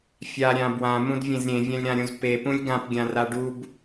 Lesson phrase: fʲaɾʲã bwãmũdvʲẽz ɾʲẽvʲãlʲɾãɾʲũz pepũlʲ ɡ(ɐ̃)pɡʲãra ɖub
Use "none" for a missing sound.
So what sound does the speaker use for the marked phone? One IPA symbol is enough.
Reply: ã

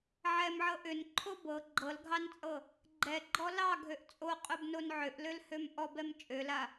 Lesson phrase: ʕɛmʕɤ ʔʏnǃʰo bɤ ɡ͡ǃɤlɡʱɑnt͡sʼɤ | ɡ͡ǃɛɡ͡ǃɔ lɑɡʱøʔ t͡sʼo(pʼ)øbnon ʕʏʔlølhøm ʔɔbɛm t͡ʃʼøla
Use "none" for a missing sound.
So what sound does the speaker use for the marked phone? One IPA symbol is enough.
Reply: qʼ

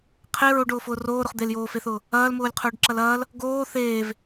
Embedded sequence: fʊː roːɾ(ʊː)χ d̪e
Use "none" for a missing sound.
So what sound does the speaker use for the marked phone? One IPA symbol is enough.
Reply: ʊ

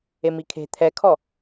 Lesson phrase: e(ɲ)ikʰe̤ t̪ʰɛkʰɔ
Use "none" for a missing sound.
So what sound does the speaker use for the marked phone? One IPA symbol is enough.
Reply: m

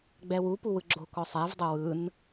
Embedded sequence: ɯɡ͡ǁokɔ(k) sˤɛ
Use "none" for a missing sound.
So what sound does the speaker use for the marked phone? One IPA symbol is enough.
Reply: none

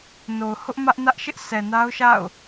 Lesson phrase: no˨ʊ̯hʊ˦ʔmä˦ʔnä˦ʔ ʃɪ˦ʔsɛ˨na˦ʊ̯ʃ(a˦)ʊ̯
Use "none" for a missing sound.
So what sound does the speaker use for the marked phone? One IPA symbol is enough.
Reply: a̰˦˨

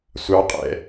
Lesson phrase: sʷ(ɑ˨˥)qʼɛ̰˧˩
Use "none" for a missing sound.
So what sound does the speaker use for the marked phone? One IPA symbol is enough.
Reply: ɑ˨˥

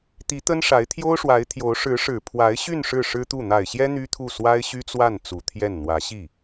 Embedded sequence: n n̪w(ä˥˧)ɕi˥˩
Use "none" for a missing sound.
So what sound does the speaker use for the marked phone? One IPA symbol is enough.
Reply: ä˧˥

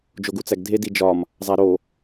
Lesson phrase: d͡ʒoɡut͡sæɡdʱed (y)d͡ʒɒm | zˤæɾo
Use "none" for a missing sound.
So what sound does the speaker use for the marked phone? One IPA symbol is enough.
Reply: i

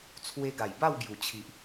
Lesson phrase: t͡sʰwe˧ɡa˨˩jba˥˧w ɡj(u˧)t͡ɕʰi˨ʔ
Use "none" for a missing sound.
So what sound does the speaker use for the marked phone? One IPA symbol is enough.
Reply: u˨˩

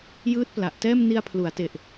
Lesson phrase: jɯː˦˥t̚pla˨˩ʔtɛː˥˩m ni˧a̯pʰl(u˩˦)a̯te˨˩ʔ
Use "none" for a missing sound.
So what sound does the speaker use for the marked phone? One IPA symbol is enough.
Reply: u˩˦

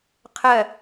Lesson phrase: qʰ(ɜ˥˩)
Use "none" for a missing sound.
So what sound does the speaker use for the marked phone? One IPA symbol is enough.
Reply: ɜ˥˩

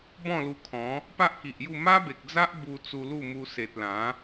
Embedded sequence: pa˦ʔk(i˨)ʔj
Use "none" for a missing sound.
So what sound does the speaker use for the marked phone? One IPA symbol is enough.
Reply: i˨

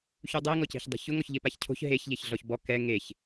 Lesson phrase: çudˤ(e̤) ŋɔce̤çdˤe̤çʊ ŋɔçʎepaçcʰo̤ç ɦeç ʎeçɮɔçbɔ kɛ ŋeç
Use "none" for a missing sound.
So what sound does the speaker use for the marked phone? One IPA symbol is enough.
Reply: e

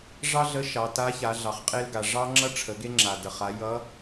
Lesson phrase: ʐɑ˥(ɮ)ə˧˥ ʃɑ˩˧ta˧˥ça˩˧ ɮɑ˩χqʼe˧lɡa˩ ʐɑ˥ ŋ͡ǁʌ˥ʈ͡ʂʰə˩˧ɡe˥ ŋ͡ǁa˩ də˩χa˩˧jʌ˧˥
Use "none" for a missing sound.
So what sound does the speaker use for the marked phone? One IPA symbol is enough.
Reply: ɮ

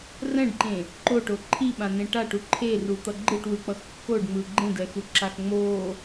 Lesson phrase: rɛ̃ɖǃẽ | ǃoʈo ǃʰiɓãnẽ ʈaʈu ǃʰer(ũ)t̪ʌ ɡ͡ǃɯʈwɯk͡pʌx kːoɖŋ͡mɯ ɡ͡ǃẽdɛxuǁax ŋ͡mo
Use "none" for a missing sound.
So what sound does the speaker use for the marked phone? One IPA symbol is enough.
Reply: u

